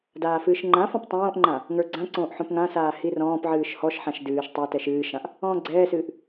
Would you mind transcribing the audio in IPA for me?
d aː f ɨː ʃ ŋ͡ǃ ã f ɔ̃ p tˤ õː ʔ ŋ͡ǃ ã | ŋ ə˞ ɡ͡ǀ ã ǀ õː ʔ ħ õ p ŋ ã s aː h i r ɔ̃ː p ʕ ɨː ʃ h ɔ ʃ ħ ã ʃ d ɨː ʃ tˤ a t ɛ ʃ ɨː ʃ ã ʔ | ɔ̃ː ɡ͡ǀ ɛː s ɨː ʔ

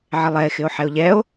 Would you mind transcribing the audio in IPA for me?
ʕ ɪ lˠ ɛ e̯ x ɪ o̯ ħ ɛ o̯ ʎ ɛ o̯

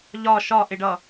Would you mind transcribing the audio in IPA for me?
ʎ ɒ ʃ ɒ ʔ ɪ ɖ ʌ

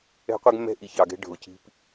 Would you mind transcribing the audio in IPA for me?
ɛ̤˦ qʷ ɛ˦ ɡ mː ɛ̤˦ ʔ i˨ ç ɑ˨ ɡ ɛ̤˦ ɖʱ ʊ˨ c i̤˦ p

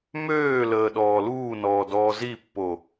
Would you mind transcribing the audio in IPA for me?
m øː l əː ɗ ɔː l uː n ɔː d ɔː z i pː o

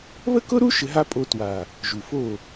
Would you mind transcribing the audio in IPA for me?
β ə˦ k ʊ˦ ɾ u˦ ʃ ɘ˧ ɦ a˦ pʼ o˧ t w a˨ | ʒ u˨ f o˦˨

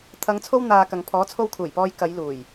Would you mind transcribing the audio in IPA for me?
t̪ʰ ɐ˨˧ ŋ t͡sʰ o˧ w n̪ aː˨ k ɐ˨ ŋ pʰ ɔː˨˥ t͡sʰ o˧ w kʰ uː˨˩ j p ɔː˧ j k ɐ˨˧ j l uː˨˩ j

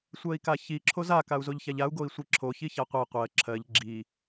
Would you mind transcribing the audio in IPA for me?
sʷ ɜ i̯ k a ç i ǁʰ o z a k a u̯ z o ʎ ç a ʎ a u̯ ɡ o i̯ sʷ i ǁʰ o ç i ç a qʷ ɜ qʷ ɜ ǁʰ ɜ ʎ ɡ͡ǁ i

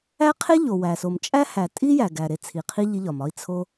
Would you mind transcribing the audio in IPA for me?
æ˦ qʰ e˦ ʎ o˨ w æ˨ s o˨ m t͡ʃʼ æ˦ h æ˨ tʼ i˦ j æ˨ ɡ æ˨ ɾ e˧ t͡sʰ i˨ qʰ i˦ ʎ i˦ ʎ ɒ˨ m ɒ˦ i̯ t͡sʰ o˦

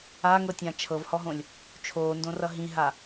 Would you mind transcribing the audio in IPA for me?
a ŋ ɤ tʲ ã t͡ʃʰ ɤ v h ɔ ɦ õ lʲ | t͡ʃʰ oː n d õ r ʌ ɦ ĩ ɦ a

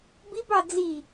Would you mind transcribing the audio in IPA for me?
b i b ɑ d͡z i

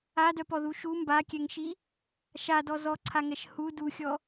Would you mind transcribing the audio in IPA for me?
a d œ p ɔ ð u ʃ u m b a kʲ ɛ ŋ ʃ i | ʃ a d ɔ z ɔ ǀʰ a ŋ ɛ ʃ h u d u xʲ ɔ

